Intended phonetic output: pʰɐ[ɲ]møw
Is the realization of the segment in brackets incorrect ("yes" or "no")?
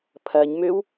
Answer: no